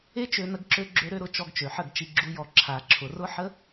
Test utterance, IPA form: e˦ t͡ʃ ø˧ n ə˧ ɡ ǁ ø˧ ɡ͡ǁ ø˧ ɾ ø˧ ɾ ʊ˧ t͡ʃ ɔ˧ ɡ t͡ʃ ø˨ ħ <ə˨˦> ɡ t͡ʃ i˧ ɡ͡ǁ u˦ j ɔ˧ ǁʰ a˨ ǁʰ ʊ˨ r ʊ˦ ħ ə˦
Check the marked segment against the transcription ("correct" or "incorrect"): incorrect